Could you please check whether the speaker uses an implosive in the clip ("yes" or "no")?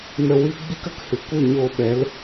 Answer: yes